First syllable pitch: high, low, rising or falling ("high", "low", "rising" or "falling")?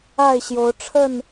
falling